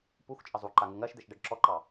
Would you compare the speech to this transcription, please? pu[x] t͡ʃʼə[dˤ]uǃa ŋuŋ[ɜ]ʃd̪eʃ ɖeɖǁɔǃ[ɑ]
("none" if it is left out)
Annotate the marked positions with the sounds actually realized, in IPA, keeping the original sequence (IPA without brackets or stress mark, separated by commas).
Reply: x, zˤ, ɜ, ɑ